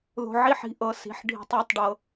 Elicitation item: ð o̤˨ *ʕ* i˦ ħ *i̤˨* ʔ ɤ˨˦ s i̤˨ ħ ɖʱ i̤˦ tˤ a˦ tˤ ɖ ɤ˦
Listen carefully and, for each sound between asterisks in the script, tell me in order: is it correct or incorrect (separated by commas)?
correct, correct